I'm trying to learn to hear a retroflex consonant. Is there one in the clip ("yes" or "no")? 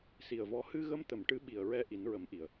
yes